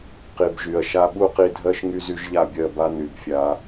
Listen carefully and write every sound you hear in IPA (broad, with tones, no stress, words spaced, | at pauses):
qi˨bʒy˨ɐ̯ ʃa˧ɓu˦qi˧dʱɜ˦ʃ ŋy˦zy˦ʒʎa˦˨bʲɜ˦˨ ba˦ny˨bfʲa˧